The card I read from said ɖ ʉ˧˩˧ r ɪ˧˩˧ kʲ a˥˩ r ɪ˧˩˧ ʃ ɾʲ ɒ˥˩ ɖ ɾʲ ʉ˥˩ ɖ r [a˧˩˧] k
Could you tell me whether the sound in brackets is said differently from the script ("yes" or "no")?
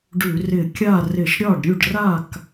yes